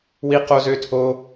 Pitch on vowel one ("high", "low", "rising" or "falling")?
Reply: high